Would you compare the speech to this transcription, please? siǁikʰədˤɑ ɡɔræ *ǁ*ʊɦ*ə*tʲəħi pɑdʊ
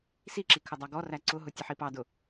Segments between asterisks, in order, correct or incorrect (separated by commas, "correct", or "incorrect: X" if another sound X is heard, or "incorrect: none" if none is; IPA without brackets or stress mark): incorrect: ǀ, incorrect: ʊ